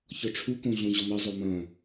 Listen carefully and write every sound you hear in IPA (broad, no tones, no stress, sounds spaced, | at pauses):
ç ɔ ʈ͡ʂʰ u k õ ɮ õ ʑ ɔ m ɐ zˤ o m ɐ̃